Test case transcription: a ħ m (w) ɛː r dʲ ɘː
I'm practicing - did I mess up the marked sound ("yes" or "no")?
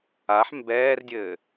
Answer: yes